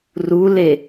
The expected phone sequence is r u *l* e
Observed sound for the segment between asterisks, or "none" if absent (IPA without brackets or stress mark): l